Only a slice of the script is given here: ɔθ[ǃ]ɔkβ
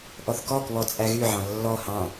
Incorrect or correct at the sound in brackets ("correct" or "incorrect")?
incorrect